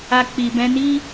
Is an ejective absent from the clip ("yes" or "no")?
yes